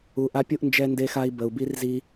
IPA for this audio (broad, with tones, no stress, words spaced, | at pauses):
u˨ʔa˦pʲu˦ʔnd͡ʒɛ˦ nde˦xa˦i̯ bə˨u̯bi˦rzi˦